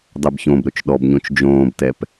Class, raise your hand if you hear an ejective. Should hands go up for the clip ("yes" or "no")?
no